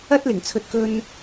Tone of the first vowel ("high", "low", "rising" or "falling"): high